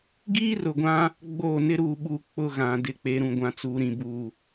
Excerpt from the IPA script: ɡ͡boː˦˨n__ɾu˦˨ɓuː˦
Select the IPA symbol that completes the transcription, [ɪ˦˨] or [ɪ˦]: ɪ˦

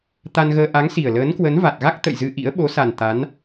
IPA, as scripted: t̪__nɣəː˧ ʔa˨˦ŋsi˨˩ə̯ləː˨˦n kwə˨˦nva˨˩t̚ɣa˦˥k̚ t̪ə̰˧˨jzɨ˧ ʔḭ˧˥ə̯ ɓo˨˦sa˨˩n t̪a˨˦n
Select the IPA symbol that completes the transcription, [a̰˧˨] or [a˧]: a˧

